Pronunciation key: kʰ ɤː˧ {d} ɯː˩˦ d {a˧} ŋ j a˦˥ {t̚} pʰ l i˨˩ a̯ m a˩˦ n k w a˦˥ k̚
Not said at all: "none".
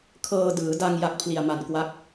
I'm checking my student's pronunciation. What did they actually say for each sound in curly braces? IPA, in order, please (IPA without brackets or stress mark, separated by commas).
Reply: d, a˧, k̚